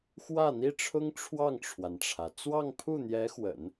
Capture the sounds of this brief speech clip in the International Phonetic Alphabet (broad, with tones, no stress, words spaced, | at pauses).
xwä˥˩n̪i˥ʈ͡ʂʰʊ˥ŋ ʈ͡ʂʰwɑ˥˩ŋʈ͡ʂʰwa˩nʈ͡ʂʰä˩ t͡swɑ˥˧ŋpʰu˥˩n̪jɛ˧˥ xwə̰˨˩˦n